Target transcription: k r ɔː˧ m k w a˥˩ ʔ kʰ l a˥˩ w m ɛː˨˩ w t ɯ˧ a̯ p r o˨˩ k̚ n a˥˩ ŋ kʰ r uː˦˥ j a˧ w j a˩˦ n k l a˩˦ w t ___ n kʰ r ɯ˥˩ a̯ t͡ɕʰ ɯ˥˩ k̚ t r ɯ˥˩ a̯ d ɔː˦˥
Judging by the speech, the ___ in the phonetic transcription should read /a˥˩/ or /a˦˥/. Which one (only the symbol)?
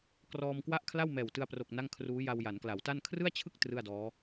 a˥˩